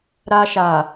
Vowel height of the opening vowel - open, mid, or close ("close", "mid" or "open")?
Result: open